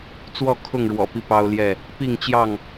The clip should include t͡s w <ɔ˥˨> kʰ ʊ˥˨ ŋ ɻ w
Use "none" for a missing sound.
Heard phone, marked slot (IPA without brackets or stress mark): ɔ˥˨